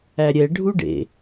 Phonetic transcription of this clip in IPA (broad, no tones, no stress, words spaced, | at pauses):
æɾʲɛ ɖʱuɖḛ